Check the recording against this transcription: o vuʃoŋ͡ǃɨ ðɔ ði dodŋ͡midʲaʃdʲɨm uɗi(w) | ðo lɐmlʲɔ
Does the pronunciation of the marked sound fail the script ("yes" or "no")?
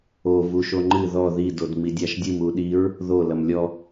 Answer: yes